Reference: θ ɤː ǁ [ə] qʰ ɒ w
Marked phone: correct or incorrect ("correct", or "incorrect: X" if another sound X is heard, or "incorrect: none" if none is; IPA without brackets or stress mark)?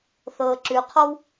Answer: incorrect: ʉ